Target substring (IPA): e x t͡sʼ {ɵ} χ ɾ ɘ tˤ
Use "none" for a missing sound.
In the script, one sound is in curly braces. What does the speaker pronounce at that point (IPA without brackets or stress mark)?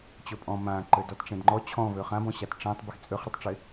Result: ø